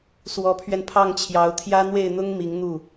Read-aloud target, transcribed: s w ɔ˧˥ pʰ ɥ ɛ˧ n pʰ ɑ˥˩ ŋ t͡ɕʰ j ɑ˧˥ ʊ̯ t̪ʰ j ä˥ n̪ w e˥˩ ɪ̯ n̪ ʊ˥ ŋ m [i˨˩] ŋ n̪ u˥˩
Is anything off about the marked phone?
yes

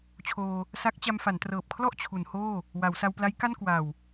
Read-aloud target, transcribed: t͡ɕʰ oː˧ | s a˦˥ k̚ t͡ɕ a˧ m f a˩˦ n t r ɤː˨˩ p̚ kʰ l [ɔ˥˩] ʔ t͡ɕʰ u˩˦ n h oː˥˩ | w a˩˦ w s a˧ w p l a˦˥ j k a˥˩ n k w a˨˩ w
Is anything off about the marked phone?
no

